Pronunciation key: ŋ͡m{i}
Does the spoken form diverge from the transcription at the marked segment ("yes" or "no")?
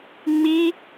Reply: no